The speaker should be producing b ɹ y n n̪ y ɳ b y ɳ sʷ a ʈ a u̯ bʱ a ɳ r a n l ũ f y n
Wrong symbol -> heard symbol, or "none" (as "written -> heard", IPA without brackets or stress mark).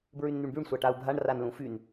none